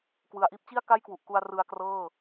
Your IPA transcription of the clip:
kwɯ˩˦a̯ʔiː˦˥p̚ t͡ɕi˥˩a̯ka˥˩jkwu˨˩ʔku˧a̯ rɯ˧a̯krɤː˥˩

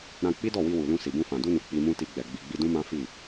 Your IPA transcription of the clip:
ɾã˧ k͡pi˦dɔ˦˨wi˧wu˨ lũ˧si˨bũ˧fã˨ du˧nu˨ k͡pi˧mũ˦ ti˧ɡ͡bɛ˨ ɡ͡bi˨ɡ͡bi˧dũ˦mã˦ fi˦˨

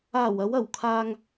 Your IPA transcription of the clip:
aː˨˩wɐ˨˧wɐ˨˩wkʰaː˨ŋ

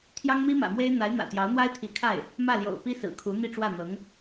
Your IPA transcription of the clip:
t̪ʰjɑ˥ŋmi˥mä̰˨˩mwe˥ɪ̯ n̪a˧˥ɪ̯n̪ä̰˨˩t̪jɑ˧˥ʊ̯n̪wa˥ɪ̯ t̪ʰi˧˥kʰa˥˩ɪ̯ | mä˥˩ljo̰˨˩ʊ̯ pi˥sɹ̩˨˩kʰu˧˥ n̪i˥˧ʈ͡ʂwä˥˩n̪ɤ˧˥ŋ

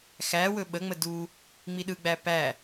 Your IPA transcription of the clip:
xæwɵ ɓəŋ͡mə du | ŋ͡miɗɯɡ͡bæ pæ

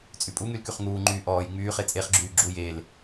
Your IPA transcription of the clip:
t͡sʼypʼuŋyl kyχŋuːŋ͡ǃyː ʔɔːj ŋ͡myːχe t͡sʼeχɡ͡ǁyː ɡ͡ǁuj el

